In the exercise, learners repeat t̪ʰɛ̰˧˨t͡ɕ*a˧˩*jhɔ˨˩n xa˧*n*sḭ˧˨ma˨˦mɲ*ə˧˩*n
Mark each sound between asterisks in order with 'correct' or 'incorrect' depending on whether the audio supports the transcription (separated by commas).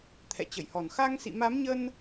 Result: incorrect, incorrect, incorrect